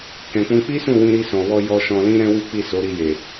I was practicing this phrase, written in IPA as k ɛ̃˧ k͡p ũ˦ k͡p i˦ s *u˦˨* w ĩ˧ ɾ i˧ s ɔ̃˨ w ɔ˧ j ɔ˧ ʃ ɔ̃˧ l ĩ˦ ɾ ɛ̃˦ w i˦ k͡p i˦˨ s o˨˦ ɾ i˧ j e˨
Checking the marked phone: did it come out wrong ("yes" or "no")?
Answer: yes